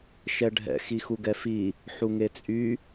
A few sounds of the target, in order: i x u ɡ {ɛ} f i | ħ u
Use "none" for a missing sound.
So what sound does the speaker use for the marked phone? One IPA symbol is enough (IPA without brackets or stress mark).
ɛ